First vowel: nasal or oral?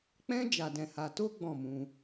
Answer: nasal